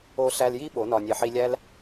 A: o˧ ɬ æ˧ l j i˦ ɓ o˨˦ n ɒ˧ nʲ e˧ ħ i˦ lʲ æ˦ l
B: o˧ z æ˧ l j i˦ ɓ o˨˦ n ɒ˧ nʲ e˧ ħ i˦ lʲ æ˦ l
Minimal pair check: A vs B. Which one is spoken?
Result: A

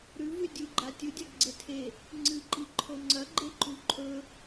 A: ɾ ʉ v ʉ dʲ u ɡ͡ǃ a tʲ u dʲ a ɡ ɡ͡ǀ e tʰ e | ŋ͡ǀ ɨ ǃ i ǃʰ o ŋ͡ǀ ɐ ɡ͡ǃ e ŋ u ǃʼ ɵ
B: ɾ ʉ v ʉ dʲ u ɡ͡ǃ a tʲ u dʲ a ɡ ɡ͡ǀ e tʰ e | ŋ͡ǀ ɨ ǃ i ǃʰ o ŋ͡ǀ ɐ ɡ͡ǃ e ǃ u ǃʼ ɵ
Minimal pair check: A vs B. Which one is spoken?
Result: B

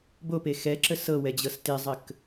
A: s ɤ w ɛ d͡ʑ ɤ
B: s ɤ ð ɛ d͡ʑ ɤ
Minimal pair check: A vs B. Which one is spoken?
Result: A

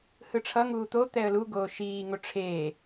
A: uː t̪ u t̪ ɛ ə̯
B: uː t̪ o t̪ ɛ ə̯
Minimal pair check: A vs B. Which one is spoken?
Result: B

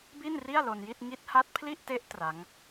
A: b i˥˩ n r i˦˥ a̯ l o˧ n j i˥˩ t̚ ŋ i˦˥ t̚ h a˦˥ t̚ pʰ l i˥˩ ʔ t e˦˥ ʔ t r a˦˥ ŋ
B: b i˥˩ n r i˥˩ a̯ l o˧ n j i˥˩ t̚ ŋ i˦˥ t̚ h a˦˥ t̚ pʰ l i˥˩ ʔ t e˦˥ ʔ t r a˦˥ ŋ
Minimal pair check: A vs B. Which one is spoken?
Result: B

